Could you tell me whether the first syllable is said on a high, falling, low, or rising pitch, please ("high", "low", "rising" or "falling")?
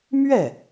falling